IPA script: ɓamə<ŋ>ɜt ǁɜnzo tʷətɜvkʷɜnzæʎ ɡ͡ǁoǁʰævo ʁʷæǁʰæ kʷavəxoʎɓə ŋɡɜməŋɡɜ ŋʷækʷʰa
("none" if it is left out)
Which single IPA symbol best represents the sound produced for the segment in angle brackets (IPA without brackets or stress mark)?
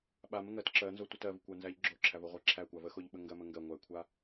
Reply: ŋ